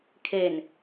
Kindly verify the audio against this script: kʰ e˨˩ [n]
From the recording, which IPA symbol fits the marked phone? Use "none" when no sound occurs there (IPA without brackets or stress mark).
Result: n